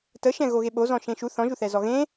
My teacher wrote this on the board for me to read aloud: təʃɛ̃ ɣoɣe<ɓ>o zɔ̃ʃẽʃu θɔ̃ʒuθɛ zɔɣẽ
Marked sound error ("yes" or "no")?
no